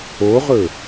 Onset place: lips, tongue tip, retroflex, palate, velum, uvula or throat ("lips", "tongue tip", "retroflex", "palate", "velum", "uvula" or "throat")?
uvula